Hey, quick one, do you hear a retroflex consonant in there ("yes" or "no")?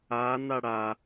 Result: yes